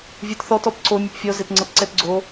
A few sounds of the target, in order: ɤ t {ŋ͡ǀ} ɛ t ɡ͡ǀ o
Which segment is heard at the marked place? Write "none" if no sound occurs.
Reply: ǀ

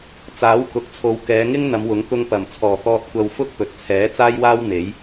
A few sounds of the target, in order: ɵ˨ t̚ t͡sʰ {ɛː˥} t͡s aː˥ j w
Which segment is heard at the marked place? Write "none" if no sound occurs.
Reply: ɛː˨˥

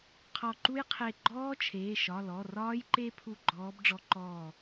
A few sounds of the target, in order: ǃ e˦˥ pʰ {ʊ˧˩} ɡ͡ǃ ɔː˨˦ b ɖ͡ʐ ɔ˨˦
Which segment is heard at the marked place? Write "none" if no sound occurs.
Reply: u˧˩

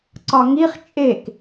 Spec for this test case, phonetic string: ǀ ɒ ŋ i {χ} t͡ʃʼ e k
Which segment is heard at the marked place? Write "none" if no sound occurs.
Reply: χ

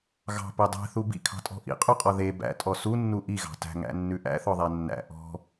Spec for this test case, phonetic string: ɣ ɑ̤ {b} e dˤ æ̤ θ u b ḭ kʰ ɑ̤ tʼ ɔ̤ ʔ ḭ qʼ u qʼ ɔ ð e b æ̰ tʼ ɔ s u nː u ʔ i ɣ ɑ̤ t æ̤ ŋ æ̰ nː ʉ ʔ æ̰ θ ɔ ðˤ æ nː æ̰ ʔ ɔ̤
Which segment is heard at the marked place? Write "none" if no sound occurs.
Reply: p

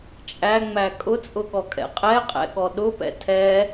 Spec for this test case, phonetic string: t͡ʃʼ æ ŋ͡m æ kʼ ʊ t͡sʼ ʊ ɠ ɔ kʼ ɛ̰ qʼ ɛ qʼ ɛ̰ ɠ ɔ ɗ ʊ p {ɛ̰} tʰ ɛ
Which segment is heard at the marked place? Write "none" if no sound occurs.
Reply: ɛ̰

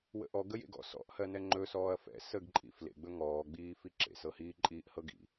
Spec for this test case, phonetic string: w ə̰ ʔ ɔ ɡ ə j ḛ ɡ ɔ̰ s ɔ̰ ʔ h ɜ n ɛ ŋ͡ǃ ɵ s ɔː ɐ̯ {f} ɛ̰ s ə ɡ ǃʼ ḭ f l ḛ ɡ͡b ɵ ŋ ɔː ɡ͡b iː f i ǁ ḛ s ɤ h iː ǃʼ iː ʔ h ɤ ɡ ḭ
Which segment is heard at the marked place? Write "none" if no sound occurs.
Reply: f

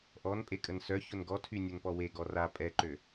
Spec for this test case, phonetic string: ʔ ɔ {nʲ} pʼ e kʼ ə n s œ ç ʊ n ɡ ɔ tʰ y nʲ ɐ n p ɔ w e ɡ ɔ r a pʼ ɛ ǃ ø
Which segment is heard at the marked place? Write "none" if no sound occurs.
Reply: n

